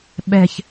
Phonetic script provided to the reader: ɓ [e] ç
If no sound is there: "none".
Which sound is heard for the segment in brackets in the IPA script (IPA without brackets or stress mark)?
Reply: ɛ